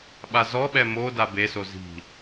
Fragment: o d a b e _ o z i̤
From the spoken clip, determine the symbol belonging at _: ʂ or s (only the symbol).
s